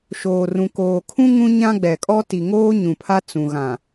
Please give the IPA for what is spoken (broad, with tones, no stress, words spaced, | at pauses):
ʃoː˨rũ˨koː˨kʰũ˦ ŋũ˦ɲã˦ɡ͡bɛ˨kʼɔ˦ ti˨ŋoː˦ ɲũ˨pʰa˦ t͡sũ˨ ɣã˨